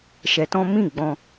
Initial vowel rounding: unrounded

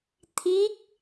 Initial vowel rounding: unrounded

